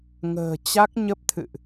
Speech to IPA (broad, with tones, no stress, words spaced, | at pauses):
ŋə̤ː˨˩t͡ɕa˦˥k̚ ɲə˦˥p̚t̪ʰɨ̰˧˨ʔ